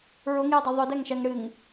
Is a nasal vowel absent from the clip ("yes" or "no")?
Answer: yes